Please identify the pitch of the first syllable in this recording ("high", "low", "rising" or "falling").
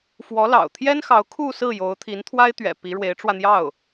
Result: rising